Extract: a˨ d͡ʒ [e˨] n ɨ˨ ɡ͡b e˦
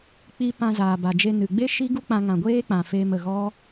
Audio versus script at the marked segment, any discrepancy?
yes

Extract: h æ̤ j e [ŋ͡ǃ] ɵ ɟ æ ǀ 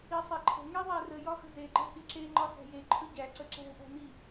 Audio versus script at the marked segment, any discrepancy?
yes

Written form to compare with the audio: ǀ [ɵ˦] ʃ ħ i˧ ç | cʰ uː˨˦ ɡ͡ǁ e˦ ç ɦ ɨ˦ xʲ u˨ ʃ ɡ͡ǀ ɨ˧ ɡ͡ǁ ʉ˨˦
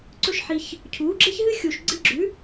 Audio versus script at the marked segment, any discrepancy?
no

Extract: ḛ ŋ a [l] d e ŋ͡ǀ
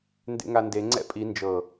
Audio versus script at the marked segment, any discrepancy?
yes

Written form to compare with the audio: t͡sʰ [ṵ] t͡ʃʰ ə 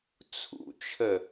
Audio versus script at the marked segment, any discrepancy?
no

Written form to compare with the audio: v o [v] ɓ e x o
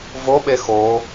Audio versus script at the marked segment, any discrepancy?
yes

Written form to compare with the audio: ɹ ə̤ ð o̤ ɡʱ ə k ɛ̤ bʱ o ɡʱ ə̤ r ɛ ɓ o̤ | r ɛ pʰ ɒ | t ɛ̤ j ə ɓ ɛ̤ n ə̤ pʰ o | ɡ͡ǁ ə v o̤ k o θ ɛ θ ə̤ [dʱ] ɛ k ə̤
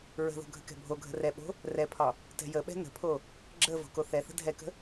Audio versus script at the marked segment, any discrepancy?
no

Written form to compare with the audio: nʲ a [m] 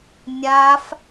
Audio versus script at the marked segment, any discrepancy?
yes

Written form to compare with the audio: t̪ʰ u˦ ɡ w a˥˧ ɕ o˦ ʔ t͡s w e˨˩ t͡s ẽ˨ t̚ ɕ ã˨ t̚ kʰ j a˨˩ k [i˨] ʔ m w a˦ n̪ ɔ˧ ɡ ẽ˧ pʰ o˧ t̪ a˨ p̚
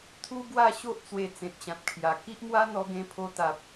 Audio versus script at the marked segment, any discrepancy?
yes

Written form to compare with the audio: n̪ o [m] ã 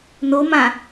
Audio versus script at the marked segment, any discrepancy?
no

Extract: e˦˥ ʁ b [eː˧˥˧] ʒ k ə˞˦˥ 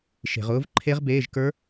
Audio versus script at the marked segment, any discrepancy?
no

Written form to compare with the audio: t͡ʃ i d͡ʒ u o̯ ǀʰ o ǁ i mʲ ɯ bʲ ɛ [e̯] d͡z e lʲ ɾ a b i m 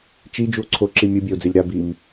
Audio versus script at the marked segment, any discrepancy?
yes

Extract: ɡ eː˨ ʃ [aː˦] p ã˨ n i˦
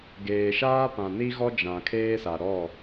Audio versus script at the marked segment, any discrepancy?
no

